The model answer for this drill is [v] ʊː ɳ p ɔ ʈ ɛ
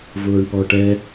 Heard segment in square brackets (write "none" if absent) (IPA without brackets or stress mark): v